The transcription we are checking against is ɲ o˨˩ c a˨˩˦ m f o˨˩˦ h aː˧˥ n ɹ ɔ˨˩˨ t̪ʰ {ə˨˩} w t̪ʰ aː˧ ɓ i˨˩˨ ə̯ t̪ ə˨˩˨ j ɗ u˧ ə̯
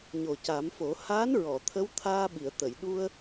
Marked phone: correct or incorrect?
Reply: incorrect